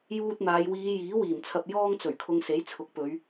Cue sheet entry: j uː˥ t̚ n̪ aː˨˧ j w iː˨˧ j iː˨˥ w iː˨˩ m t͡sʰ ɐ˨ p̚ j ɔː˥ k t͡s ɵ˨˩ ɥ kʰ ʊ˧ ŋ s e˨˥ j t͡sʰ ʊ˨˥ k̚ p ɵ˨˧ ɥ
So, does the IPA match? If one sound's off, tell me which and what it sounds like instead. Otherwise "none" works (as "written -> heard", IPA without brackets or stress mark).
k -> ŋ